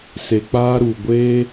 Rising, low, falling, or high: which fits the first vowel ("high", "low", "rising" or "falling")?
high